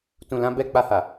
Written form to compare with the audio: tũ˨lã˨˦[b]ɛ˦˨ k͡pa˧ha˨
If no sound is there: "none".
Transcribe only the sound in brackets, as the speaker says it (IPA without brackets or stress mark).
b